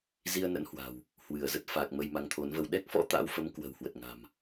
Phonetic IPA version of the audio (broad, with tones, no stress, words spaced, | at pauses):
zi˧ə̯nə̰˧˥nhwa̤˨˩w | hwɨ˧˩ə̯zə˦˥t̚ fa˨˩k̚ mə˧jma˨˦ŋt̪ʰo˨˦nvə˧w ɗɛ˦˥k̚fɔ̰˧˥ t̪a̰˧˥wfə˨˦m kwə̤˨˩whwə˨˩t̚ŋa̤˨˩m